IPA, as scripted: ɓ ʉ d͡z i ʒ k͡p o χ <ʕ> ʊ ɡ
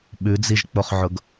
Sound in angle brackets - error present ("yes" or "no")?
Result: no